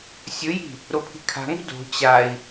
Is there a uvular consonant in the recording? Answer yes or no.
no